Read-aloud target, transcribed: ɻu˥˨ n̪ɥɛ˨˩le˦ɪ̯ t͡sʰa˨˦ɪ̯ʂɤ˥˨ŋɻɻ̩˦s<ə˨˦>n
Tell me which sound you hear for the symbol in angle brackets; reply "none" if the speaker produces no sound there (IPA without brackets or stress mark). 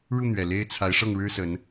ə˨˦